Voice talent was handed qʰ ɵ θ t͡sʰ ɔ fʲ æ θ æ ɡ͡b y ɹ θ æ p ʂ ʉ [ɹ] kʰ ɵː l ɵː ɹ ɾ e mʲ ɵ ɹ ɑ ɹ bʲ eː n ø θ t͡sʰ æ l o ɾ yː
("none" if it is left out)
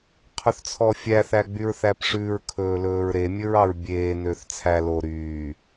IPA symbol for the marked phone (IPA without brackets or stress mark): ɹ